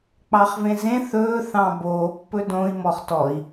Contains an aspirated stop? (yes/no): no